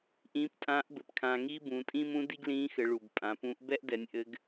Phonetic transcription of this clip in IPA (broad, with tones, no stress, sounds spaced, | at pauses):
ʔ ĩː˧˥ p tʼ ãː˧˥ ʔ b ɘ˩˧ p kʰ ãː˧ ŋ iː˥ b ũː˩˧ tʼ ĩː˥ m ũ˧˥ d i˥ ɡ l ĩː˧˥ x ɘ˩˧ ɭ u˩ b pʼ ã˩˧ p ũː˧˥ ʔ b ɛ˥ ʔ d ɛ˩˧ nʲ ʔ ɘ˧˥ ɡ